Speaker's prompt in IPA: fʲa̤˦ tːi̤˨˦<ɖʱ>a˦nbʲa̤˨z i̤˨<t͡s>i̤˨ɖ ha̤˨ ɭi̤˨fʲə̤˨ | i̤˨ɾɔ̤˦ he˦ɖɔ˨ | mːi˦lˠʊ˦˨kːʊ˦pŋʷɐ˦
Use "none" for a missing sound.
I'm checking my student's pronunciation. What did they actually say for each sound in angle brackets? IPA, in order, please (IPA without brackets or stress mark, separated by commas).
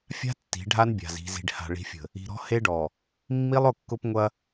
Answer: ɖʱ, z